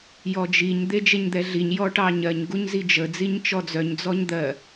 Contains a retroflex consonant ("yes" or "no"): yes